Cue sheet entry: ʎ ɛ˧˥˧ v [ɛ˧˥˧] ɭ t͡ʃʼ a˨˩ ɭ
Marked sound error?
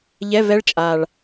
yes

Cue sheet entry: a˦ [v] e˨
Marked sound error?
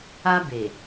yes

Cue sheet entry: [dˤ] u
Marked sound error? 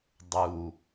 no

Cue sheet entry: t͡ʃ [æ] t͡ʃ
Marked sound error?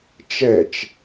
yes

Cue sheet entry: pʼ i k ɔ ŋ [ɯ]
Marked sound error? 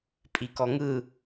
no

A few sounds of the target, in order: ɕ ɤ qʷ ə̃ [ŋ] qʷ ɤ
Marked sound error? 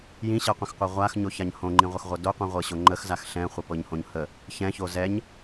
yes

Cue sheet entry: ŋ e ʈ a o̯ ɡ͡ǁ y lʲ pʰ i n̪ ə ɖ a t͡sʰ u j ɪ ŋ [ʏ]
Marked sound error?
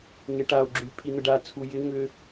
no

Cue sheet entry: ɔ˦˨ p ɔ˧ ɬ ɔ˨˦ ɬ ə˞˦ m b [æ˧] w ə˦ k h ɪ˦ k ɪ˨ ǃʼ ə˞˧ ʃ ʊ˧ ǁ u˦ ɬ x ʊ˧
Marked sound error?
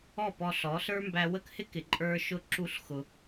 no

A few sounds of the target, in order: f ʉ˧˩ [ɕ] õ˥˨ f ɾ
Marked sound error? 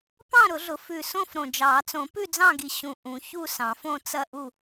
yes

